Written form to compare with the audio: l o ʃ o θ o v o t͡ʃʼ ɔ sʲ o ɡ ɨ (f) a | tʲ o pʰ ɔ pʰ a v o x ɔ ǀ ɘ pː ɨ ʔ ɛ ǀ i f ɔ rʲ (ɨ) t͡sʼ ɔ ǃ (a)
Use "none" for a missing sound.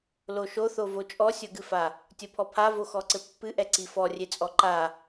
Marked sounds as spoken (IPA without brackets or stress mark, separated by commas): f, e, a